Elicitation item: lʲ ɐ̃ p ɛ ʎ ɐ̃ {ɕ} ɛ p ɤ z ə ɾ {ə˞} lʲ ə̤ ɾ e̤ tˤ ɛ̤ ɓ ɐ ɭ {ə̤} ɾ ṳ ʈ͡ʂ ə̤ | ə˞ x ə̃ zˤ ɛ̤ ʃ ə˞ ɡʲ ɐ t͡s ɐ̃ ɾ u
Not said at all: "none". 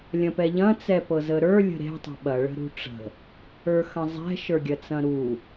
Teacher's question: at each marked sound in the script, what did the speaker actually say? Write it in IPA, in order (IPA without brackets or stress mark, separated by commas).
t͡s, ə˞, ə̤